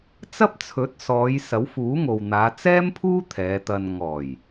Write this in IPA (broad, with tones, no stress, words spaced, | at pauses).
t͡sɐ˥p̚t͡sʰɵ˨˥t̚ sɔː˨˧j sɐ˨˥wfuː˨˥ŋo˨wn̪aː˨˧ t͡sɛː˥mpʰuː˥ t̪ʰɛː˨˧t̪ɐ˧n ŋɔː˨˩j